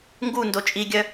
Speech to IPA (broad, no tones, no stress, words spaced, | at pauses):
ŋɡundo t͡ʃʼiɡʲœ